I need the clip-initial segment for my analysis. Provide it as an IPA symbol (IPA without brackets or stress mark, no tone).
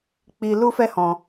k͡p